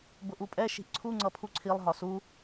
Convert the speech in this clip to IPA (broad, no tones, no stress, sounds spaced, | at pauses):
b ʊ ʔ u pʼ ɛ ʃ i̤ ʔ ǀʰ u ŋ͡ǀ ʌ pʰ u ǀʰ i lˠ ɦ ɒ s u